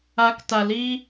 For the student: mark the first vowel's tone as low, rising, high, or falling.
rising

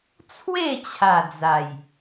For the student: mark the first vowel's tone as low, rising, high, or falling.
falling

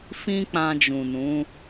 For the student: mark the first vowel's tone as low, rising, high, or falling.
high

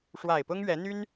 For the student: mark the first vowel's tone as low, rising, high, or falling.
low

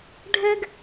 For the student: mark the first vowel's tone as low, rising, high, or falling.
high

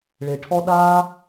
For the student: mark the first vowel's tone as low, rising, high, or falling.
low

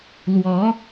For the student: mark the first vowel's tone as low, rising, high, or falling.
rising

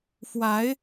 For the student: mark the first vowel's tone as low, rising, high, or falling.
rising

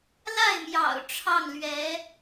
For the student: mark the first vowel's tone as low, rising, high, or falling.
falling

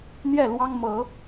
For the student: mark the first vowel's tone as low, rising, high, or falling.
falling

